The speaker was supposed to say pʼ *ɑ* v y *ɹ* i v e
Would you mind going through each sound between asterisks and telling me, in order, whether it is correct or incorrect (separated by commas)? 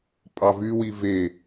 correct, incorrect